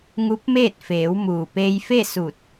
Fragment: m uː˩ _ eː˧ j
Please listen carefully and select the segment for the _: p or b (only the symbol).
p